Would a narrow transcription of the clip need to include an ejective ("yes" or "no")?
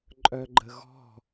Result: yes